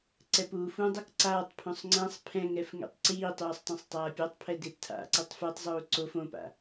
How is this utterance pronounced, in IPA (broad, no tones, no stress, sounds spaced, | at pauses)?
ǀ ɛ p uː f ũ dˤ ʌ k ǀ aː tˤ pʰ ũ sˤ ŋ͡ǀ ɛ̃ sˤ pʰ ɛ̃ ŋ ɛ f ŋ ḛ tˤ ǀ iː tˤ uː sˤ tˤ ũ sˤ tˤ aː pʲ a tˤ pʰ ɛ d e p tʰ a̰ ǀ i tˤ f ɯ tˤ zˤ uː ǀ o f õ p a̰